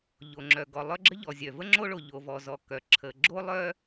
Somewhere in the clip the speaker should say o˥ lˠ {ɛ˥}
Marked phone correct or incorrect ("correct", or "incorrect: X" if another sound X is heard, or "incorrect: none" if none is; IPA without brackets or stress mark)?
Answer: incorrect: œ˥